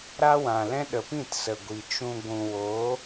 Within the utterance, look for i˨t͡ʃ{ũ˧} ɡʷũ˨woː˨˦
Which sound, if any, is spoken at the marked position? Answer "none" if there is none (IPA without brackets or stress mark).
ũ˧